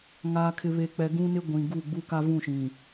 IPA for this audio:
ŋaː˨kʰɪ˨βe˨k͡pɛ˨ ɡũ˦nɪ˦ ɡʷĩ˨ɡu˦˨ ɡ͡bu˦ka˦ vũ˦˨ʃĩ˨

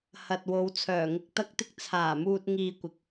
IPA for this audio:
hɐ˨t̚ wo˨˧wt͡sʰœː˨˩ŋɪ˧k̚ t̪ɐ˥k̚t̪ɪ˥k̚ t͡sʰaː˨˩muː˧t̚ ŋiː˧kʷɪ˨k̚

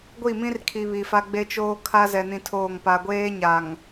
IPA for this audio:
ɡʷi˦˨mĩ˦rkʰi˨ βi˨fa˦ɡ͡be˦ t͡ʃoː˦kʰa˦ zɛ˦nĩ˦tʰoː˦˨ŋpa˦ ɡʷeː˦ɲa˨ŋ

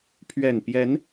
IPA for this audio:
pʰɥɛ˨˩npjɛ˨˦n

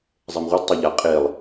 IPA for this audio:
zˤɛmʁʷad tˤaʎa qʼelˠ

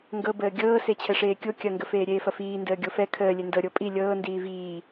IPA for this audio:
ŋɡɤbəː ɡʲɤː set͡ɕʰɛʂeːkʲo kʲɐŋɡə feːɾʲeːfɐfiː ndəːɡʲofɛ kʰəːlʲe ndɤ ɾʲopʼi lʲɤː ndiːviː

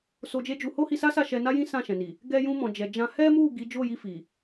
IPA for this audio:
so˧d͡ʒe˦d͡ʒu˧ ho˦hi˧sa˦sa˦˨ ʃɛ˧ na˦jĩ˦ sã˦˨ʃɛ̃˨ni˨ | ɡɛ˧jũ˧mɔ̃˨ d͡ʒɛ˨d͡ʒã˧ hɛ˦mu˦˨ ɡi˨˦ d͡ʒo˦˨ji˧ fi˨

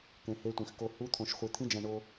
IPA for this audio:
kẽ˧he˦˥tʷẽ˧x ko˧ hu˦˥ t̪ʰõ˧ʃχʷi˧ t̪ʰĩ˦˥d͡ʒæ̃˧ɳo˧

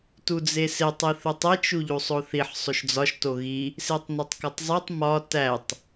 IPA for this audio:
tud͡zesetˤ iθutˤet͡ʃ uʎusˤoθiħ sˤoʃd͡zɒʃ toɣi | setˤnetˤkɒtˤzˤetˤ mɒ tætˤ

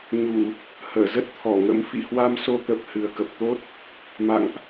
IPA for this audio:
ɲu˧˩˨ | həː˧˩zə˦˥t̚t̪ʰɔ˧˩ŋə̰˧˥m fḭ˧˨hwa˧mso˧ t̪ə˦˥p̚ hɨ˨˩ə̯kə˨˩p̚t̪o˦˥t̚ | ma̰˧˨ŋʔ

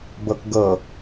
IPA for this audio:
bɤkɡɤ

